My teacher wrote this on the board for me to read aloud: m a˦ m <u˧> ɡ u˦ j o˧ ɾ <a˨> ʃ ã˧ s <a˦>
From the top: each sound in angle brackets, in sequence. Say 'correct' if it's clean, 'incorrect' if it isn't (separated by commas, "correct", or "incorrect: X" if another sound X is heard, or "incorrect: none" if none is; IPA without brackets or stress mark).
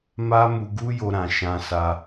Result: correct, incorrect: ã˨, incorrect: a˧